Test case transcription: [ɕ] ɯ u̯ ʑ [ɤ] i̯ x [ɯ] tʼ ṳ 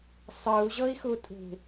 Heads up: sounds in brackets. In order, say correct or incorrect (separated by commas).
incorrect, correct, incorrect